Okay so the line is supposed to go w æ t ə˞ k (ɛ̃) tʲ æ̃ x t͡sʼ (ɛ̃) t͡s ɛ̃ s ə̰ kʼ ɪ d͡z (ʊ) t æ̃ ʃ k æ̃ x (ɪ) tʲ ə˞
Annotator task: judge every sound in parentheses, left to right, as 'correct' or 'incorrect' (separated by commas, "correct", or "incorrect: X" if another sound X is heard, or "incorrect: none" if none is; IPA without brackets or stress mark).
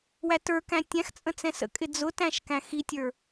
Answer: incorrect: æ̃, incorrect: ə̃, correct, incorrect: i